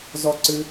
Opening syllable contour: high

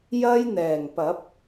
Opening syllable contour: high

